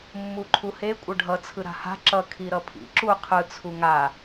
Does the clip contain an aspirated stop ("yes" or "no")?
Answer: yes